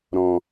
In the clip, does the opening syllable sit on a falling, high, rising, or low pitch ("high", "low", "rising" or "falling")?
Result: low